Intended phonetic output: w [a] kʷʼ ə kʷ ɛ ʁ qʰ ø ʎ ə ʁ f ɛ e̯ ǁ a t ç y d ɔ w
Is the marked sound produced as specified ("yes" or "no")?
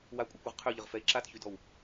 yes